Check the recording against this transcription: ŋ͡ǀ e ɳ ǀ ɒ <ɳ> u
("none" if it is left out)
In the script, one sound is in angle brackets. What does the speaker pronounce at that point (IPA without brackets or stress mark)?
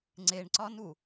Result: n